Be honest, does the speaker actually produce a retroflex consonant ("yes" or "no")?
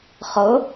no